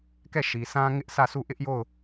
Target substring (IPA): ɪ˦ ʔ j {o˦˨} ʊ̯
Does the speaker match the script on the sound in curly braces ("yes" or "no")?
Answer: yes